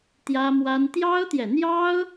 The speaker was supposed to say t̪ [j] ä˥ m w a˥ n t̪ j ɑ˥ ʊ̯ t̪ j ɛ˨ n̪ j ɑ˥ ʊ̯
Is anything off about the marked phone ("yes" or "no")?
no